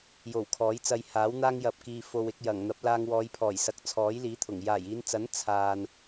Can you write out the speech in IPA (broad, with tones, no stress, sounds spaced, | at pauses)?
j o˨˩ w kʰ ɔː˨˥ j t͡s ɐ˧ j h aː˨˥ w n̪ aː˥ ŋ j ɐ˨ p̚ k iː˨ f o˨ w ɪ˧ k̚ j ɐ˨˩ ŋ n̪ ɐ˨˥ p̚ l aː˧ ŋ w ɔː˨˧ j pʰ ɔː˨˩ j s ɐ˨ k̚ t͡sʰ ɔː˨˥ j l iː˨˥ t̪ʰ ʊ˨˩ ŋ j aː˨˩ j iː˨˧ n t͡s ɐ˨˥ n t͡sʰ aː˨ n